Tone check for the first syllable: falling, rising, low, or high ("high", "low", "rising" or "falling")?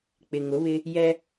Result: low